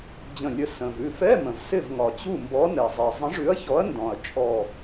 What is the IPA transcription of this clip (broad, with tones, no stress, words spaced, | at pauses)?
d͡ʑə̃˧˩lʲə˧˩ sə̃˩vʉ˧˩fɛ˧˥˧ mə̃˩vsɪ˥˩vŋɒ˩t͡ɕu˥˩ mbɔ˨˥nɛ˩zˤɛ˩ zˤə̃˨˥ʐʉ˨˥ɐ̯çɔ˨˥ɐ̯ ndɔ̃˩ɐ̯ t͡ʃʼɔ˧˩